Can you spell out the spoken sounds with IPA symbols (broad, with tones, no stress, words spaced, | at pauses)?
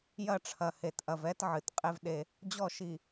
jɐ˦˨ʈ͡ʂʰɐ˨he˨tʔɐ˨v ɛ˦tʕɨ˨tqʼe˦vɗe˦ | d͡ʑɔ˦˨ʃi˨